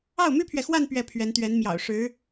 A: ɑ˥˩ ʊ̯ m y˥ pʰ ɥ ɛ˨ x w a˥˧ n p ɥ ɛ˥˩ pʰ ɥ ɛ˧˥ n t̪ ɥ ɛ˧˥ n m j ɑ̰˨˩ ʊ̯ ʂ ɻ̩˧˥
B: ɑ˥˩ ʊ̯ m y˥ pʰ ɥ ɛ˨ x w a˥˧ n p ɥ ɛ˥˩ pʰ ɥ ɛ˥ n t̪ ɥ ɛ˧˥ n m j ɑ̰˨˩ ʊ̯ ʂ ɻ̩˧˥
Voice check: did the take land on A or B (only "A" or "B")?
A